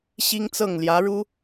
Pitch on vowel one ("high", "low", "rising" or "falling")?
high